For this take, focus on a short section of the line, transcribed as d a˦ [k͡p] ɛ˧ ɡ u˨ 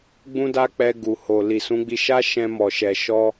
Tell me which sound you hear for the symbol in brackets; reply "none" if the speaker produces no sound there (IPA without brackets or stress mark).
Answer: k͡p